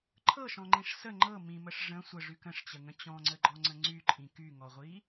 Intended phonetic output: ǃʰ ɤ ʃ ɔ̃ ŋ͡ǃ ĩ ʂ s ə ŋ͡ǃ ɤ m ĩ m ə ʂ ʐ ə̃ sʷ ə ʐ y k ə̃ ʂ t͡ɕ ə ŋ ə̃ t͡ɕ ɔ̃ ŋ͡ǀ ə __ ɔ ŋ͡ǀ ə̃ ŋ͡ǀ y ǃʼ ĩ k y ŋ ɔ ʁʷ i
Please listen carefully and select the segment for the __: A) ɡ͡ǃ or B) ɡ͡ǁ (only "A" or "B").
A